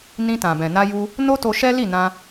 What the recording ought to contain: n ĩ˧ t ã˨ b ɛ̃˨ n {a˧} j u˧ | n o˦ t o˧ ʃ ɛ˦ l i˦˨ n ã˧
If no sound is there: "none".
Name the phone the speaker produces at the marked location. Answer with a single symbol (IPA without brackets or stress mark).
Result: a˧